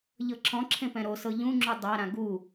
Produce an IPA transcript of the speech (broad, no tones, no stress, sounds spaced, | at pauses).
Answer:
ʎ ɤ ǁʰ ɔ̃ ǁʰ ẽ p ɛ̃ ɾ o s ɤ ʎ ũ ŋ͡ǁ u dˤ a ɾ ã ɡ u